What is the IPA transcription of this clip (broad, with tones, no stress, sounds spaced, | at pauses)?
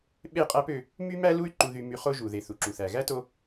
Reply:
ɓ e˦˨ qʼ æ˦ p ø˧ | m y˦ m æ˦ l u˦ y̯ ǃ u˧ ð y˧ m y˧ χ o˦ ʒ u˨ ð e˨ θ u˨ ǁ u˨ θ æ˨ ɣ æ˦ t o˧